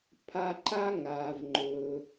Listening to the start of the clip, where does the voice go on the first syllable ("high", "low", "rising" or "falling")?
high